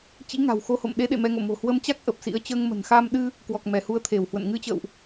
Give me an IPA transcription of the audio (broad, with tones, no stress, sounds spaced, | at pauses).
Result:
t͡ɕ ḭ˧˥ ŋ a̤˨˩ w x o˧ h o̰˧˨ m ɗ e˨˦ ɗ ḛ˧˨ m ɛ˧ ŋ o̰˧˨ m o̤˨˩ h w ə˧ m t͡ɕ a˦˥ k̚ ʔ ə˨˩ p̚ s ḭ˧˥ ə̯ t͡ɕ əː˧ ŋ m ə̤˨˩ n x a˧ m ɗ ɨ˧ | k w ɔ˨˩ k̚ m ɛ˧˩ h u˨˦ ə̯ t̪ʰ e˧˩ w h w ə̰˧˨ n ŋ ɨ˧ t͡ɕ ə̰ː˧˨ w ʔ